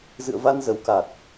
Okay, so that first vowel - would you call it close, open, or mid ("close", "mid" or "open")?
close